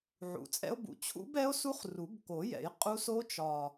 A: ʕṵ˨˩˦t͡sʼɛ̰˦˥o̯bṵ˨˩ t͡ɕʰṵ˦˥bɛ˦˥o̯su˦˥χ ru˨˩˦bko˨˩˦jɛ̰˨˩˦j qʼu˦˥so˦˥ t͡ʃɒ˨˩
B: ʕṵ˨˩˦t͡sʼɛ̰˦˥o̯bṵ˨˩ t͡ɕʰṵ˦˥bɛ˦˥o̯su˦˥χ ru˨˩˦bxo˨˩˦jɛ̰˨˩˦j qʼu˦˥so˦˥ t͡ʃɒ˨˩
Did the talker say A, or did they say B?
A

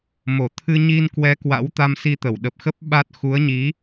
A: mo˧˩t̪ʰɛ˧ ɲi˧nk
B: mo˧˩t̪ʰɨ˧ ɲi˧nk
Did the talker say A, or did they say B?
B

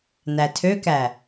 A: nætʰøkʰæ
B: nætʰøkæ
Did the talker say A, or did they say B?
B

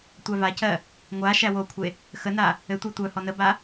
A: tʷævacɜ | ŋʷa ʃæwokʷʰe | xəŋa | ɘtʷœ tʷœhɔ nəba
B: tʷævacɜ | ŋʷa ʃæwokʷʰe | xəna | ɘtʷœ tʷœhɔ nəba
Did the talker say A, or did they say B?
B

